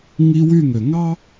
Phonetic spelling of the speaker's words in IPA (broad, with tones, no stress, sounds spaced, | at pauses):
ŋ i˦ w y˧˩ ŋ ø˩ ŋ ɑ˦